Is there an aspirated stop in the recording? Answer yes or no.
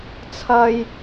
yes